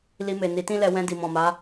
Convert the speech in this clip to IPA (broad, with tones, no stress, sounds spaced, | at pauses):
l i˧ m e˨ n i˨˦ t ĩ˦ l ɛ˧ w ɛ̃˧ d i˨ m ɔ̃˨ m a˨˦